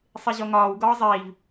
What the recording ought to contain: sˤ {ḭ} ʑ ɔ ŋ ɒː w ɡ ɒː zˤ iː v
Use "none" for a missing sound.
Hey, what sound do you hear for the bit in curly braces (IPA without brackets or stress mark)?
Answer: i